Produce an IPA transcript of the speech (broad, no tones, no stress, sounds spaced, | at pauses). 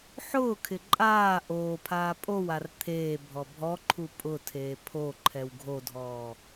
ħ ʊː kʰ ɪ ǃʼ aː ʔ oː pʰ aː pʼ o w a r t̪ʰ eː bʱ ɔ bʱ ɔ ǃʰ u pʼ ʊ tʰ eː pʰ o ǃʰ ɛ w ɡʱ o dʱ ɔː